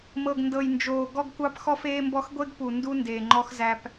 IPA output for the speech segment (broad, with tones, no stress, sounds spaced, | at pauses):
m ɤ˨ ɡ n d ɤ˨ j n d͡ʒ oː˨ ɡ ɔ˦ ɡ kʷ ɑ˦ p x ɔ˦ f eː˦ m b ɔ˦ x ɡʷ e˦ ɡ p u˨ n d u˦ n d eː˨ ŋ͡ǃ ɔ˦ x z æ˦ p